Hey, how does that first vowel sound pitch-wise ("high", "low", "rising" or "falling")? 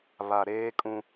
low